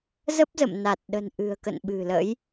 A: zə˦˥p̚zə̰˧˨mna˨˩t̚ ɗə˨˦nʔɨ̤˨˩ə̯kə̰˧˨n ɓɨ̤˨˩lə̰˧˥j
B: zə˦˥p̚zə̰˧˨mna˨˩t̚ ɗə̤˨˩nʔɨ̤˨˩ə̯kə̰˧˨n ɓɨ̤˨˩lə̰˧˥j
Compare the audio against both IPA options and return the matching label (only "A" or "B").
B